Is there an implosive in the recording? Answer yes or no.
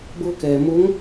no